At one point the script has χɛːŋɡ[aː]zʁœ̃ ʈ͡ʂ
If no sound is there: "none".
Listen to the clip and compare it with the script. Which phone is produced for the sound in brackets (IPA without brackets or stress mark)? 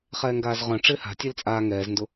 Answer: aː